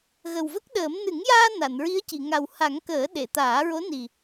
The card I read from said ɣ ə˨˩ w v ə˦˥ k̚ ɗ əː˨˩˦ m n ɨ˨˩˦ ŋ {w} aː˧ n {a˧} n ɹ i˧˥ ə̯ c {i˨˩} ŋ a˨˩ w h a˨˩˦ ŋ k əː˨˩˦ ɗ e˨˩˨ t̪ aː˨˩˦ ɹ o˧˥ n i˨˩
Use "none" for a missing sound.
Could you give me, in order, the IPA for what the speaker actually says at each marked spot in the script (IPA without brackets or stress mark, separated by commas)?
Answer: j, a˨˩˨, i˨˩˨